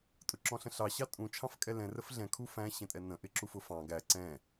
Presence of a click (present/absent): present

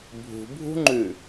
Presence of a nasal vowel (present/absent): absent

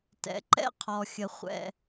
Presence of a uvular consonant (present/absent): present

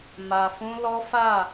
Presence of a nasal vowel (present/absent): present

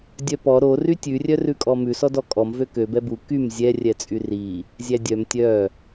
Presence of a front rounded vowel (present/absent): present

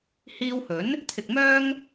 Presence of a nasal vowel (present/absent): absent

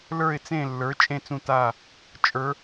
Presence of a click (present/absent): absent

